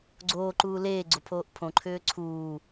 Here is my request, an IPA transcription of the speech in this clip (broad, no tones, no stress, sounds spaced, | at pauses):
ɡ͡ǀ oː ǃ uː l eː ɡ͡ǀ o pʰ oː ʔ pʰ õ ǃʰ ʏː ǀʰ uː